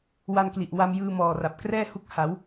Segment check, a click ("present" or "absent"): absent